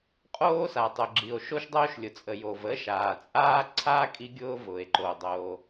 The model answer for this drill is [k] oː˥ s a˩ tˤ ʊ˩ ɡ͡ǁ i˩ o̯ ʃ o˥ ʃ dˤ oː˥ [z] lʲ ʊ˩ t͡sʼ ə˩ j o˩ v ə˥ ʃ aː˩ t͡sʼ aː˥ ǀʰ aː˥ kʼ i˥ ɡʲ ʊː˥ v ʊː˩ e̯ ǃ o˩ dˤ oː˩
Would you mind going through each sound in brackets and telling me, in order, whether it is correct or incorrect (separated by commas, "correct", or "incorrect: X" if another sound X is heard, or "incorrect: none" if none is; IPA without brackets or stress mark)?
incorrect: qʼ, incorrect: ʃ